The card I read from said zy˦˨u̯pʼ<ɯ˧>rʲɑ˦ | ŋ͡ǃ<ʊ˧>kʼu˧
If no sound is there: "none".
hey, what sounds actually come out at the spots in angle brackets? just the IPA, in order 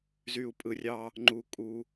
ɯ˧, u˧

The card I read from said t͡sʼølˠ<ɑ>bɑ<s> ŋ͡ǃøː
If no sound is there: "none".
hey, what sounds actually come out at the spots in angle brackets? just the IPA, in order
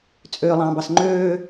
ɑ̃, s

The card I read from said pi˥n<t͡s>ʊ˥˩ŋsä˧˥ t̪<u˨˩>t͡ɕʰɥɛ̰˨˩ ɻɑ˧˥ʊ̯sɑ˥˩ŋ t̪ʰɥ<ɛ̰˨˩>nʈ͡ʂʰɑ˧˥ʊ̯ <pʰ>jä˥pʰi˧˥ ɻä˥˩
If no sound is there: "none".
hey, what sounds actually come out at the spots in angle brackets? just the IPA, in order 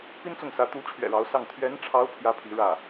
t͡s, u˧˥, ɛ˧˥, pʰ

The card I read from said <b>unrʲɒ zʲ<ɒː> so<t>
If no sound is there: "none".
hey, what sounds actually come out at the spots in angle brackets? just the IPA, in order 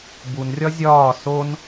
b, ɒː, n

